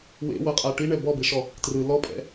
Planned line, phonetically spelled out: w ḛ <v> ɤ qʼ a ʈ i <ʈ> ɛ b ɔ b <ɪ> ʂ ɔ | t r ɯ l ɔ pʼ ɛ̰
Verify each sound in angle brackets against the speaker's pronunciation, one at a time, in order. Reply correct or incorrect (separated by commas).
incorrect, incorrect, incorrect